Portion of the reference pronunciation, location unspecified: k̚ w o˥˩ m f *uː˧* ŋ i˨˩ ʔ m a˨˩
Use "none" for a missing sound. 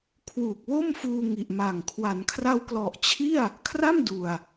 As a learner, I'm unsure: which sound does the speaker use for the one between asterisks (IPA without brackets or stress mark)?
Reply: uː˧